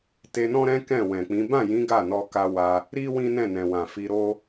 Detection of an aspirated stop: absent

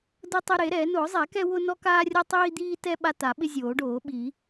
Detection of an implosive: present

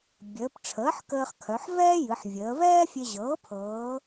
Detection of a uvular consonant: present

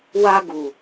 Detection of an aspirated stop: absent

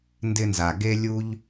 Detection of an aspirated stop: absent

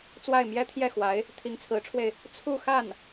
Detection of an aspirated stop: present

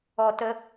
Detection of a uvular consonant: absent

